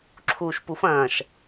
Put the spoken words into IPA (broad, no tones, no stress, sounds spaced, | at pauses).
ǁʰ uː ʃ p u f ɐ̃ː ʃ